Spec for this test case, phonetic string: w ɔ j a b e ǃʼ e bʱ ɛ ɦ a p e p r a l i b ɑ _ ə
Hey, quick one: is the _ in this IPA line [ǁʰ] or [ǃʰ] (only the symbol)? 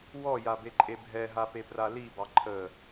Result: ǃʰ